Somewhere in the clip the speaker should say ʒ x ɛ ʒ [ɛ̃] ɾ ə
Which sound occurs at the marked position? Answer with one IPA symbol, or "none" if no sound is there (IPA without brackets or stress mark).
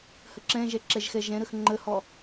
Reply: ɛ̃